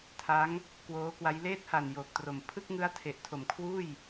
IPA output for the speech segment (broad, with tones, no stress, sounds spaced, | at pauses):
tʰ a˦˥ ŋ | k w oː˦˥ k w a˦˥ j l eː˦˥ t̚ h a˨˩ n j oː˨˩ k̚ t r o˨˩ m pʰ ɯ˥˩ k̚ ŋ ɯ˦˥ a̯ tʰ e˨˩ ʔ tʰ o˨˩ m kʰ w uː˥˩ j